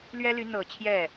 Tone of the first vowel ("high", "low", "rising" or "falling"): high